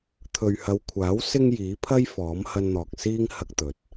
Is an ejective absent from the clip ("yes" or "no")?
yes